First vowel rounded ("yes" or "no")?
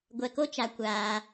no